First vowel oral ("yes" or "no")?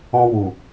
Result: no